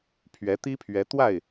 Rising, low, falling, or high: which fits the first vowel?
rising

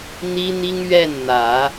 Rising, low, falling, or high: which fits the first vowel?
high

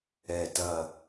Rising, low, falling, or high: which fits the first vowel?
low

